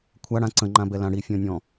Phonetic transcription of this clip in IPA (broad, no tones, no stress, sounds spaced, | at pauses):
kʷʰ a ɽ ã ǀ ə̃ ŋ͡ǃ ã b ɛ l ã ɽ i fʲ ɔ̃ nʲ ɔ̃